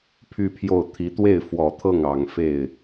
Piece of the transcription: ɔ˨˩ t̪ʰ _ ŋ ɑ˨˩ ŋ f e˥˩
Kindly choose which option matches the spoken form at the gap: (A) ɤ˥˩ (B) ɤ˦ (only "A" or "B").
A